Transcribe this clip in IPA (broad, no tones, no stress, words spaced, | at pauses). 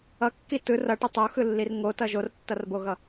ʌkːi tɯr ʌʈɯ tˤoxɯlːir ŋotʌ ʒortːʌrboɣʌ